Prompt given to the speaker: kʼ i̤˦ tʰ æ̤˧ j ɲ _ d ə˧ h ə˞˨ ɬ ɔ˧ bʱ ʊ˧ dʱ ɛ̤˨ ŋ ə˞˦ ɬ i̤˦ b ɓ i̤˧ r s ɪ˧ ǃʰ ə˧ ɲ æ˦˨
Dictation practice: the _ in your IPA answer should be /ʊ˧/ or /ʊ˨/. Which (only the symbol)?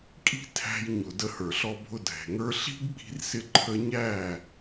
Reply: ʊ˨